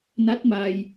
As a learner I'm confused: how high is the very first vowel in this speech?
low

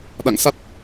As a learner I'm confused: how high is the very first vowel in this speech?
low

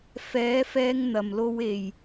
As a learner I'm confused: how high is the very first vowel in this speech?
mid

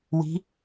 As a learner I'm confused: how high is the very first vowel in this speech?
high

